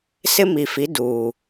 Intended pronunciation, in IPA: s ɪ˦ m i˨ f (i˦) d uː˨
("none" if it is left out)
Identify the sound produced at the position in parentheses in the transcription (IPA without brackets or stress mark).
i˨˦